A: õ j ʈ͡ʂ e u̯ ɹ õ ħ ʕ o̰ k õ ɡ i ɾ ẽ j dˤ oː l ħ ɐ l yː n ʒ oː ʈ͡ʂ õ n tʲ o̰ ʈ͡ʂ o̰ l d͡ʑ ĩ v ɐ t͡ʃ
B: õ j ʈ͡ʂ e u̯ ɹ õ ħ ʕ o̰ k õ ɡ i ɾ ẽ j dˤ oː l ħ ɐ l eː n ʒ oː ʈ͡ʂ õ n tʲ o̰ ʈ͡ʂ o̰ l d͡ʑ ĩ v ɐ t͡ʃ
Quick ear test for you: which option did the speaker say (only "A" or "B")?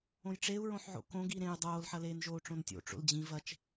B